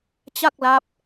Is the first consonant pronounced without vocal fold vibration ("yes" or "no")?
yes